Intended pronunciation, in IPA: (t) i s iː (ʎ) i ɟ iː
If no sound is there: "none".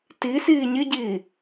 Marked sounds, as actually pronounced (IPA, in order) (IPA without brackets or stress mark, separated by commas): t, ɲ